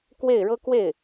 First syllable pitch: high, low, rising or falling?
falling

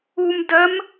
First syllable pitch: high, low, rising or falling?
low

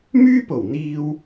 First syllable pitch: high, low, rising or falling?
high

